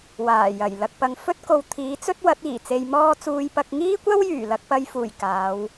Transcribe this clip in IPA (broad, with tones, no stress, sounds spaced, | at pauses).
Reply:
w aː˨˩ j ɐ˨˩ j l ɐ˨ k̚ p ɐ˨ ŋ f ɵ˥ t̚ k o˨˧ w t̪ʰ iː˨˥ t͡s ɵ˥ t̚ w ɐ˨˥ t̚ iː˨˩ t͡s e˧ j m ɔː˥ t͡s uː˧ j p ɐ˧ k̚ ŋ iː˥ kʷ ɐ˥ w j yː˨˩ l ɐ˧ k̚ p ɐ˨ j f uː˨˩ j k aː˨˧ w